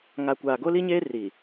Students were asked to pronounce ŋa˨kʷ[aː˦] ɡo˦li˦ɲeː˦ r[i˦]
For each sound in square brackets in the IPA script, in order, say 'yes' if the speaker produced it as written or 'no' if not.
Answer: no, no

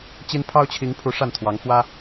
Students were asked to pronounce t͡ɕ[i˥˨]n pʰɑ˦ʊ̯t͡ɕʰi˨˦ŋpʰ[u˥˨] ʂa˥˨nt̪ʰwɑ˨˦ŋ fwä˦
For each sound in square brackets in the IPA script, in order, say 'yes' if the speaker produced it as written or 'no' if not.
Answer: no, no

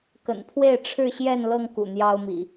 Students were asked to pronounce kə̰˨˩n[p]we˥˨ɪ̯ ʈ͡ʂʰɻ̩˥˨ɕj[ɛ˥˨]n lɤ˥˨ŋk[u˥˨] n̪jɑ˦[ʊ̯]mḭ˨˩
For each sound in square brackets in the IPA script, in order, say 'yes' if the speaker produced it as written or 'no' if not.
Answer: no, yes, no, yes

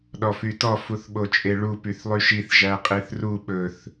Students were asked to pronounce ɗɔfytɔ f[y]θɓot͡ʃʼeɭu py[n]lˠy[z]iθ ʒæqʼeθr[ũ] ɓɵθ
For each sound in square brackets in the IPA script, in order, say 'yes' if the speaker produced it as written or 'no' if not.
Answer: no, no, no, no

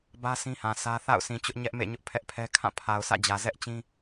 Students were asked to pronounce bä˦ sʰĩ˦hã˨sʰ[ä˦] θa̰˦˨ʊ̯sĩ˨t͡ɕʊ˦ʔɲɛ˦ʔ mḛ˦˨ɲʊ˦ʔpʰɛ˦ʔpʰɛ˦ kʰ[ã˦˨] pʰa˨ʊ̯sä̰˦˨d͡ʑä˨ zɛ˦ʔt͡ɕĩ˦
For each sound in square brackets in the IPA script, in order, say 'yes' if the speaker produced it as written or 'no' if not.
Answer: yes, yes

